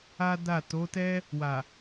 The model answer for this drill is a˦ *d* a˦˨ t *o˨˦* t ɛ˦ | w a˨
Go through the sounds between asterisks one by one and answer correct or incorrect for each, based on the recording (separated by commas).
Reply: correct, correct